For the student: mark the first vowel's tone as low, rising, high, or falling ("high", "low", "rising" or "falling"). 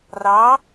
rising